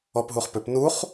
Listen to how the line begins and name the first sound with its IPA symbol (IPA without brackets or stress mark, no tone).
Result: ɔ